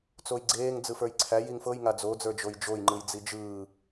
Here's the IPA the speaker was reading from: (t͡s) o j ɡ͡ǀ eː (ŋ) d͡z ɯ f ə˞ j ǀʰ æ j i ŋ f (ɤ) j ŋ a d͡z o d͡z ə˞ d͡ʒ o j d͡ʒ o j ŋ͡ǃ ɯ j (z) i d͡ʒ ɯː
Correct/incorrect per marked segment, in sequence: correct, correct, correct, incorrect

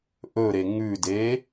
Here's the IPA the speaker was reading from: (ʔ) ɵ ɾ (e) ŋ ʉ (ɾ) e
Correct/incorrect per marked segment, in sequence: correct, correct, incorrect

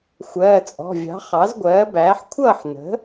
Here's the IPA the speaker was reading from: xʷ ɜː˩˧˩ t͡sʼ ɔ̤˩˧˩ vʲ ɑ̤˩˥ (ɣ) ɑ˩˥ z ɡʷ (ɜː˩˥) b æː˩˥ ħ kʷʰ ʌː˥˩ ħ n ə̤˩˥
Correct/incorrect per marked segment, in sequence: incorrect, correct

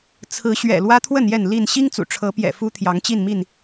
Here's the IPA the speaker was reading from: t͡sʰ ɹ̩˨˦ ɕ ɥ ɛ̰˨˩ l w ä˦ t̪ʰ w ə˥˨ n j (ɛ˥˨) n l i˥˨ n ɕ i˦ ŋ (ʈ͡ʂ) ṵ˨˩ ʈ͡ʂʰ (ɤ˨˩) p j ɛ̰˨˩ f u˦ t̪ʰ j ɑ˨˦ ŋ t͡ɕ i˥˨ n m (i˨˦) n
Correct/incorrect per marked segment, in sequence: correct, incorrect, incorrect, incorrect

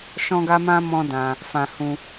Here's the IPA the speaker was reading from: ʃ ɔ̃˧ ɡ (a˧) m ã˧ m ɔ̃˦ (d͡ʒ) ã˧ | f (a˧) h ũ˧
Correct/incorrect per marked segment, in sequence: correct, incorrect, incorrect

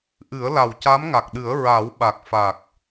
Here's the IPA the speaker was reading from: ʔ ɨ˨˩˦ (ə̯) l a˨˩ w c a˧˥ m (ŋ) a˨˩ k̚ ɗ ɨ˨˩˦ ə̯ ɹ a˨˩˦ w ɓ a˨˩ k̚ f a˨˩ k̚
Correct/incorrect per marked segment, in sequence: correct, correct

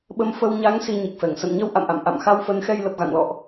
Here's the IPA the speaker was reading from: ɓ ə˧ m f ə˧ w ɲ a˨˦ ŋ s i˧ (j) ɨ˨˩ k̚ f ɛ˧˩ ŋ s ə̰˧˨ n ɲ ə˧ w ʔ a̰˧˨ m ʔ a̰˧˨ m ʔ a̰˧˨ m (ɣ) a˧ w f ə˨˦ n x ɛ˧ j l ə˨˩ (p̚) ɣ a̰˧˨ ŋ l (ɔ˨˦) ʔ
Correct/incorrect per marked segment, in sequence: incorrect, incorrect, correct, incorrect

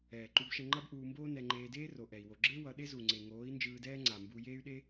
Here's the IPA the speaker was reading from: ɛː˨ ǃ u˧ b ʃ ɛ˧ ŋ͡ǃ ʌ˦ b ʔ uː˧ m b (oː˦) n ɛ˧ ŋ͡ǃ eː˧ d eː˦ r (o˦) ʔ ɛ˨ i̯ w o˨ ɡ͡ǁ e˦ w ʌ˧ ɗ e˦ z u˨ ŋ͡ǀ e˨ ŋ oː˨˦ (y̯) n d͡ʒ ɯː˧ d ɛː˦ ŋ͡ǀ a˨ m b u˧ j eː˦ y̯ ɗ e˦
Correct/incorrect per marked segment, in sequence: correct, incorrect, incorrect

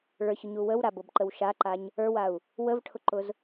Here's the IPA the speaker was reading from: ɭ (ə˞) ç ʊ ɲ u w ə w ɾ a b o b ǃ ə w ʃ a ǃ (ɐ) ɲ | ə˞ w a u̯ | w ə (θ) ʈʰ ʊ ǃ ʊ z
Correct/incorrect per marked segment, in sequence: correct, incorrect, incorrect

